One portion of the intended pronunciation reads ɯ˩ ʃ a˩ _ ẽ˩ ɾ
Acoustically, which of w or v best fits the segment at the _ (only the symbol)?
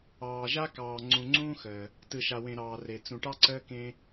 w